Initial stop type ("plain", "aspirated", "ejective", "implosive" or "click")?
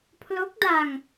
aspirated